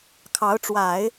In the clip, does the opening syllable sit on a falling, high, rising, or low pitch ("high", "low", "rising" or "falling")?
rising